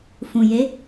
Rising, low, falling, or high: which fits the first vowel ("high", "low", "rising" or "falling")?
low